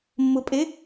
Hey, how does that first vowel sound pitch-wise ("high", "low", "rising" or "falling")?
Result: low